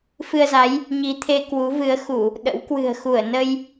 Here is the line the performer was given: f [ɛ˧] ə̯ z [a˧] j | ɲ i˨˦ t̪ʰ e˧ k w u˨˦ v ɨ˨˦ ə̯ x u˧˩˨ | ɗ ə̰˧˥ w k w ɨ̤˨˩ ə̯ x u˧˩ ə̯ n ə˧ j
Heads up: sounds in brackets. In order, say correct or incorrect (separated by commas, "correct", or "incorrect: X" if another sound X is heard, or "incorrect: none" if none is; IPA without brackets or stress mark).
incorrect: ɨ˧, incorrect: a˨˦